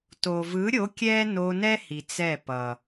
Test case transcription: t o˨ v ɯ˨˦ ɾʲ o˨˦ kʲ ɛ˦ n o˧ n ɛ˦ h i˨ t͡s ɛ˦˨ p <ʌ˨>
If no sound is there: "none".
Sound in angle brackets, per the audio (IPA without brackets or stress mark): ʌ˨